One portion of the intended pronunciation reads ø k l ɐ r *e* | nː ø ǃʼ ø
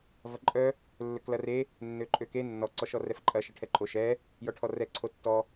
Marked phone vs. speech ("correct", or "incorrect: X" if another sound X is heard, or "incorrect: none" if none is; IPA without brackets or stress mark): correct